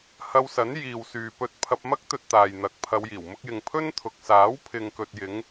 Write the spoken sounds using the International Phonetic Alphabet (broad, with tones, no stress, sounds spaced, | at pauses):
h ɐ˧ w s ɐ˨˥ n j iː˨ w s yː˨ p ɵ˧ t̚ pʰ ɐ˧ p̚ m ɐ˥ k̚ t̪ ɵ˧ t̚ t̪ aː˨ j n̪ ɐ˨˥ k̚ pʰ ɐ˨˧ w j iː˨˩ w m ʊ˧ k̚ j ɪ˨ ŋ pʰ ɵ˥ n t̪ʰ ʊ˨ k̚ s aː˨˥ w pʰ ɪ˨ ŋ k ɵ˨ t̚ j ɪ˨˧ ŋ